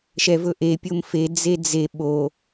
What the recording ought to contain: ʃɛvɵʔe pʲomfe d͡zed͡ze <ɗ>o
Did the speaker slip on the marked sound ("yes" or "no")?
yes